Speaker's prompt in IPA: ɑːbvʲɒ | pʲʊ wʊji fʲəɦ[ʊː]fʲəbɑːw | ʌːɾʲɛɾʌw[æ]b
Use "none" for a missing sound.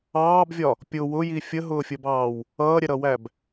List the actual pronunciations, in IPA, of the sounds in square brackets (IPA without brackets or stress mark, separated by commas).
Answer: ʊː, æ